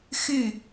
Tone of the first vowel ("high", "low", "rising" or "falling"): falling